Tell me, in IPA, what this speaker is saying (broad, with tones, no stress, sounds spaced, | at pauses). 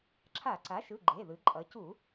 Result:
ǁʰ a˧˩˧ ǀ a˩˥ ʃ ɯ˩˧˩ ɡ͡ǃ e˩˧˩ ð ɯ˩˧ ǃʼ ʌ˩˧ c u˧˩˧